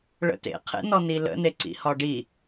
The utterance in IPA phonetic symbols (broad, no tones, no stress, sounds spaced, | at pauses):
ɭ ə̰ t ḛ qʰ ḛ n ɔ n i l ə̰ n e ǀ ḭ h ɒ ɖ i